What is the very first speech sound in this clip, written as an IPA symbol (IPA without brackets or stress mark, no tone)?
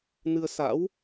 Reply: n